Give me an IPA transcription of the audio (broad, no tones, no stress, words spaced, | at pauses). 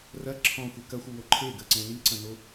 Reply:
rɐ ǁʰɔ̃xʷe kɐxʷɯwo ǃʰeɡɜǀɛ̃ liǀɐ̃no